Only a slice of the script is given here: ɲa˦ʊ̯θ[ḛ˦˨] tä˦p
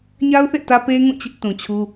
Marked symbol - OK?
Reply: yes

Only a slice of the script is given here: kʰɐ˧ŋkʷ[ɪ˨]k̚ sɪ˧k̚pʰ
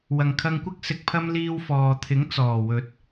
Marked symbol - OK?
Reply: no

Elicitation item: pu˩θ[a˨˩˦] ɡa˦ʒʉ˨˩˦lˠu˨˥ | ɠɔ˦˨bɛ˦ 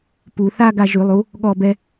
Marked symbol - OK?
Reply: no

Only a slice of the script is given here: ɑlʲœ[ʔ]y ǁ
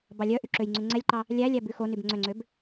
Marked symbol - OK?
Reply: yes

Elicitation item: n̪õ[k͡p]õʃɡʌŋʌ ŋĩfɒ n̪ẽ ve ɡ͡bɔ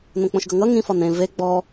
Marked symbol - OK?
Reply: yes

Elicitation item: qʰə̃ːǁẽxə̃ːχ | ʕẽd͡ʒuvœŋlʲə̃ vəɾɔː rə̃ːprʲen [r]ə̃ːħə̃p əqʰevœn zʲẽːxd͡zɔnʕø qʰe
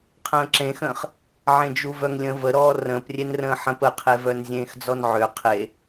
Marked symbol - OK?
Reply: yes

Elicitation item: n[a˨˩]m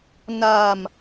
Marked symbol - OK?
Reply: no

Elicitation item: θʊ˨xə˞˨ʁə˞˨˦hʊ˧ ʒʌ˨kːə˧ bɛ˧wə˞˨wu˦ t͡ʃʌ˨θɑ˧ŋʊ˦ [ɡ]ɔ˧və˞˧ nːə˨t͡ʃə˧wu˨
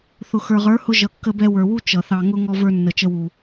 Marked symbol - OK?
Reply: no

